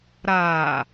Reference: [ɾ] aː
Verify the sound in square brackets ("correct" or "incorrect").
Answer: correct